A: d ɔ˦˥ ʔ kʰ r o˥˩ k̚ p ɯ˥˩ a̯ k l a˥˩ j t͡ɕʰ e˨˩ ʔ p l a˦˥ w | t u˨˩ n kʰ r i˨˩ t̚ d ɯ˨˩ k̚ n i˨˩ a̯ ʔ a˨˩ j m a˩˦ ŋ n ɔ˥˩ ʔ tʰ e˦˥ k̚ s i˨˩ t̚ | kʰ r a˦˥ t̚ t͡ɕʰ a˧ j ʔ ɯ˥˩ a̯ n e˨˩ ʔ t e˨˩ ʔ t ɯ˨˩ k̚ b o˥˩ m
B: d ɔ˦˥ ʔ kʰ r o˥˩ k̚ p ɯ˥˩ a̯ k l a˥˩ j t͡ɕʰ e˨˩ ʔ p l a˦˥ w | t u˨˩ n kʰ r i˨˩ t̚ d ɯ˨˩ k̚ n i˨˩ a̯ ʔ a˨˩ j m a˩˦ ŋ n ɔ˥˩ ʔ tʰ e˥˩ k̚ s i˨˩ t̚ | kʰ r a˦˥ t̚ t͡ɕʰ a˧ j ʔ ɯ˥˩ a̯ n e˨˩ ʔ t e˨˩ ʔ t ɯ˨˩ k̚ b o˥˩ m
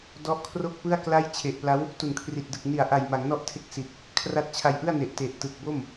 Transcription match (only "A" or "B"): B